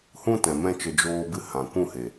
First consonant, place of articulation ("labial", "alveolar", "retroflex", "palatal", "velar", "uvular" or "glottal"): glottal